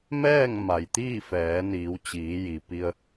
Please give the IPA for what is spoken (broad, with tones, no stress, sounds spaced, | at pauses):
m ɛː˥˨ ŋ m a˩ j t̪ iː˥˨ f ɛː˩˧ n iː˩˧ w t͡ɕ iː˩˧ j i˩ p i˧ ə̯